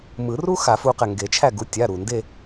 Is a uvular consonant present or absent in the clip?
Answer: present